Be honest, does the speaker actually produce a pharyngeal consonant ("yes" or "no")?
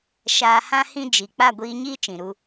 no